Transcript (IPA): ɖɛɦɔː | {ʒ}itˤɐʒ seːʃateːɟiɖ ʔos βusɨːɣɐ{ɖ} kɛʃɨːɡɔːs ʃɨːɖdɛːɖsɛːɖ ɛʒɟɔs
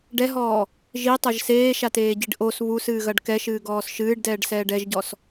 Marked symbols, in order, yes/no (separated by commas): yes, yes